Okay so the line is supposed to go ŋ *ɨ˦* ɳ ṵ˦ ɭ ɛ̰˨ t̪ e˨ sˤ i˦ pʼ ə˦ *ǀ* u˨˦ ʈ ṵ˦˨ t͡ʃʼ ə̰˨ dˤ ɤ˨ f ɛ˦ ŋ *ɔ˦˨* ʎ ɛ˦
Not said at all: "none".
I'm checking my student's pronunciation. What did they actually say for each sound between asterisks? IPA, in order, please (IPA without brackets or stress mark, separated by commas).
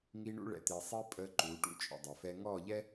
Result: i˦, ǃ, ɔ˦˨